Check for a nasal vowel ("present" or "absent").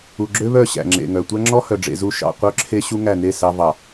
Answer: absent